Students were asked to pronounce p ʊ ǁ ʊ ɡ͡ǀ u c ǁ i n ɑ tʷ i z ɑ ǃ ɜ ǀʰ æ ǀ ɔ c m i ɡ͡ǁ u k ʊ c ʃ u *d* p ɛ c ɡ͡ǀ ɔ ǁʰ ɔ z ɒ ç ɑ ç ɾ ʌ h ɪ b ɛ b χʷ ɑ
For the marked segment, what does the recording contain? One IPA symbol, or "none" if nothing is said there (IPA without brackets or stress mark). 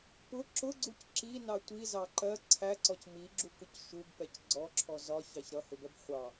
b